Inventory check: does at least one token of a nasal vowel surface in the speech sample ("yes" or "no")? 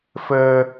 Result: no